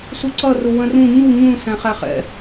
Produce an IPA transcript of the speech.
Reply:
s u ǀ ʌ r ʊ w ə̃ r ũ ɲ u ɲ ũ s æ̃ χ æ χ ɛ̰

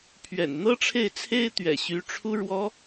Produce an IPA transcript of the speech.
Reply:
pʰ ɥ ɛ̰˨˩ n n̪ ɤ˥ ʈ͡ʂʰ e˥˩ ɪ̯ t͡sʰ e˥ ɪ̯ t̪ ɥ ɛ̰˨˩ ɕ y˧˥ ʈ͡ʂʰ u˥ ɻ w ɔ˥

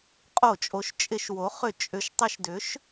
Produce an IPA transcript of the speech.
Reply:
qʼ o˧˩˧ t͡ʃʼ o˩˥ ʃ t͡ʃʼ ɪ˧˩˧ ʃ w o˩˥ χ ʏ˧˩˧ t͡ʃʼ ʏ˩˧ ʃ tˤ ə˧˩˧ ʃ d ʏ˩˥ ʃ

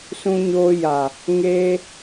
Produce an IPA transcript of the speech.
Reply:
s ũ˧ ɲ oː˧ j a˨ | ŋ eː˧

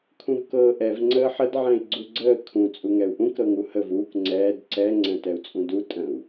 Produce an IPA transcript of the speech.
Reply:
kʰ ũ v k ɤː ʔ ɛ v ŋ͡ǀ əː ħ ə d ʕ ɛ̃ i̯ ɡ͡ǀ u ɡ͡ǀ əː kʰ ũ t͡sʼ u ŋ ɛ u̯ ʔ ũ k ɾ ɤ ŋ u h ə v uː k ŋ͡ǀ ɛː d ǀ ɛ ŋ͡ǀ ɛ̃ t ɛ u̯ t͡sʼ ũ d u tʼ ə̃ u̯

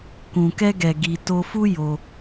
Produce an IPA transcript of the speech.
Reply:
k ũ˨ k ɛ˧ ɡ ɛ˨ ɡ i˨ t o˧ f u˦ j o˧

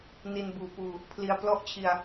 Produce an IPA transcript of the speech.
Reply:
n i˧ n b uː˨˩ p uː˧ | pʰ l i˦˥ a̯ p l ɔ˦˥ ʔ t͡ɕʰ i˧ a̯

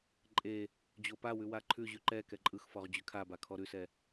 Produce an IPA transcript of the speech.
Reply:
ǃʼ e | d͡ʑ o p a w ʉ w a ǃʰ ʉ ʑ ʉ ǃ ɛ k ɛ ǃʼ ɯ x f ɔ ʁ d͡ʑ ʉ kʰ a b a kʰ ɔ ɾ ʉ s ɛ

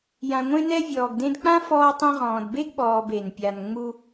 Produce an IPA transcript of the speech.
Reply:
j ã˨ ŋʷ ẽ˦ n ɛ˦ vʲ ɔː˨ ɡ d ẽ˦ d k͡p ã˥ f ɔː˦ tˤ ẽ˦ ʁ ɔ̃ː˨ d b e˥ ɡ ɓ ɔː˨ b e˩ n pʲ a˨ n ŋ͡m u˦

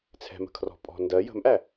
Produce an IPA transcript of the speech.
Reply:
t͡sʰ ɛ̤ m ə̤ kʰ r ɔ̤ pʼ ɔ̤ n d ɜ j ə̤ m ʔ æ

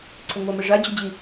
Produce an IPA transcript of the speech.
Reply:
ǀʰ ɘ ŋʷ a m ɘ ʐ a d͡ʑ o d͡ʑ i

